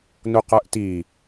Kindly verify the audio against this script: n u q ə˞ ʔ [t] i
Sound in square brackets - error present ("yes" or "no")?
no